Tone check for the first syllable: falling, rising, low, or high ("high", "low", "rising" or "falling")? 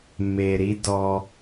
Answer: low